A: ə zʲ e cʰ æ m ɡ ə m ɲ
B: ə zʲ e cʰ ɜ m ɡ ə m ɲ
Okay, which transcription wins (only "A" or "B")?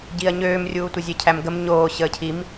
A